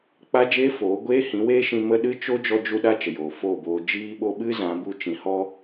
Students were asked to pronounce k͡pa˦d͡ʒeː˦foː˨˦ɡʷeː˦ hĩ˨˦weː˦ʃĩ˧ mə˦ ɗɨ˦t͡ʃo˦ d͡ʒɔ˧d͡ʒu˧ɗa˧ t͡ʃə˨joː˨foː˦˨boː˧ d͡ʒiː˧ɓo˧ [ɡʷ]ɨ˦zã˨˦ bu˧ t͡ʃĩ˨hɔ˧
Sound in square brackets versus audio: incorrect: ɓ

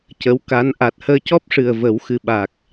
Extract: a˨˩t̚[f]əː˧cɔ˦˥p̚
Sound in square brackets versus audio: incorrect: h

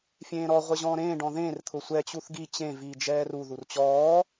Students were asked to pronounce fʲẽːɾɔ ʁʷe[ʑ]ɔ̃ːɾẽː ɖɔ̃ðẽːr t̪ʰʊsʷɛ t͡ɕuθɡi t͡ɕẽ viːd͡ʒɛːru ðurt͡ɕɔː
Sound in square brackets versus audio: correct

